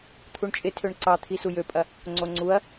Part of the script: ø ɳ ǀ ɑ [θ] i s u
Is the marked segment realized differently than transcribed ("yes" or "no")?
yes